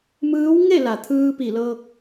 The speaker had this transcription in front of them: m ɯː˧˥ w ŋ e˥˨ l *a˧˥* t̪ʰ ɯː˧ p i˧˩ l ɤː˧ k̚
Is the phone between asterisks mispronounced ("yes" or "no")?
yes